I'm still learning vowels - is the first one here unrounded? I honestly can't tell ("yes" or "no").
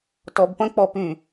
no